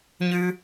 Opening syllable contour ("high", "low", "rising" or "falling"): high